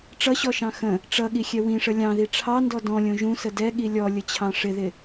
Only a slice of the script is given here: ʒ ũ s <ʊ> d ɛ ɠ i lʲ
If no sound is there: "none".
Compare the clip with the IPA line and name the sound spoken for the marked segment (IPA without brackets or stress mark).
ə